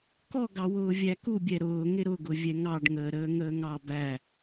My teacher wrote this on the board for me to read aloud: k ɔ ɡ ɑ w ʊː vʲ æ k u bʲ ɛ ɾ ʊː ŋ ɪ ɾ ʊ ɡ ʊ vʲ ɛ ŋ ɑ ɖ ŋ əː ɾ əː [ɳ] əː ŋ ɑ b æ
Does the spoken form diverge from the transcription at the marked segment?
yes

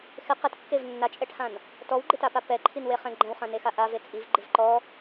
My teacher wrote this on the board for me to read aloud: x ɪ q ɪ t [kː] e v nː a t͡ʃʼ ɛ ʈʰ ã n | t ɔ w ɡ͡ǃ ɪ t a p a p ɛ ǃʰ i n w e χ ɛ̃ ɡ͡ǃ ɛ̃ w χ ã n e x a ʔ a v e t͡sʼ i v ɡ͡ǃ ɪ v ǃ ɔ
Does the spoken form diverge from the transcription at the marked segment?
no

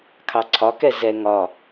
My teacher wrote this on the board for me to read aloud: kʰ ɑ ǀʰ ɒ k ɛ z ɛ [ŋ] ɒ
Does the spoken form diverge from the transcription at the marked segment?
no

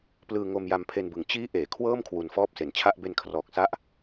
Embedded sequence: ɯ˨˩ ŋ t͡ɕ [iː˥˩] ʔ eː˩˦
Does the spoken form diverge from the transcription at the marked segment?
yes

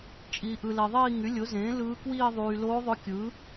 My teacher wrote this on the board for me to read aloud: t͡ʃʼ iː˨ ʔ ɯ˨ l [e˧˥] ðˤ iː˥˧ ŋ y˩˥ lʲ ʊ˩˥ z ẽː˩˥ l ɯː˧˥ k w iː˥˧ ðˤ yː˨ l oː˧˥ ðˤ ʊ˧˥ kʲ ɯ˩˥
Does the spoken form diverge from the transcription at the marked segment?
yes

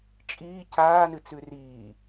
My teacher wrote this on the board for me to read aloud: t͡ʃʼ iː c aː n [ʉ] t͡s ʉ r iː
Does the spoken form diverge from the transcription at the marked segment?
yes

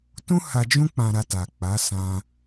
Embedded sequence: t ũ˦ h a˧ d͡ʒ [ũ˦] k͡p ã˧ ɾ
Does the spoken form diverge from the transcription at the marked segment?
no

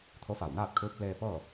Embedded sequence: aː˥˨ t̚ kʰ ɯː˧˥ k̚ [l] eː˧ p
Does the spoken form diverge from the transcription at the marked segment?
no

